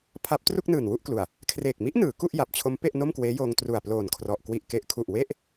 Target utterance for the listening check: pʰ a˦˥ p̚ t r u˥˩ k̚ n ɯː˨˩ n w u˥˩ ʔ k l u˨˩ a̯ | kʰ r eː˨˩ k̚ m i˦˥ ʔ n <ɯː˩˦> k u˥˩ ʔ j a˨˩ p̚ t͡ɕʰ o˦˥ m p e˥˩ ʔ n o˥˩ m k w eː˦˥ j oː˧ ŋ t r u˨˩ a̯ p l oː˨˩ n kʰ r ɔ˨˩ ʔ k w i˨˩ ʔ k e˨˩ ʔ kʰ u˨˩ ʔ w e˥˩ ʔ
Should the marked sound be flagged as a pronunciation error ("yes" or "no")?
no